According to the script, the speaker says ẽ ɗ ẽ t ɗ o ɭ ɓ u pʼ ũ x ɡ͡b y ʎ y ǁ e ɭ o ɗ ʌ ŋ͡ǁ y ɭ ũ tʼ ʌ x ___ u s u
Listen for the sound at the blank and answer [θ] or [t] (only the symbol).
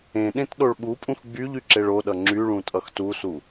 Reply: t